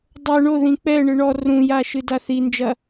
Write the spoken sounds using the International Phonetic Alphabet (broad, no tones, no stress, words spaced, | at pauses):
dˤo ɳo ðĩk͡pɛɳɨ ɳɔ rũja ʃɨdaθind͡ʒɐ